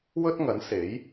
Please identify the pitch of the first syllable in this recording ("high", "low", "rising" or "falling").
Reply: high